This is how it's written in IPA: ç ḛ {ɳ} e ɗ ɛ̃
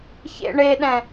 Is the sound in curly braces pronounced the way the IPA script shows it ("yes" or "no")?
yes